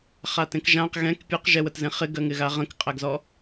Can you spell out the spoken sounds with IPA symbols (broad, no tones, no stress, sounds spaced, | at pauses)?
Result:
χ a t ẽ k ʒ ã q ɣ ɛ̃ k pʲ e q ʒ ɛ w ə t z ẽ χ ɪ ɡ ɜ ŋ ɪ ɣ a ʁ ə̃ k qʼ æ ɡ z ɔ